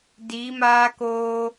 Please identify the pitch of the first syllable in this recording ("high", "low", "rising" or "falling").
rising